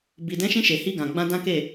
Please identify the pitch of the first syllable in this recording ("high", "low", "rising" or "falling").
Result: low